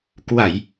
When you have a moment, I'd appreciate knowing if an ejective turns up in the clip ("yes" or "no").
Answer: no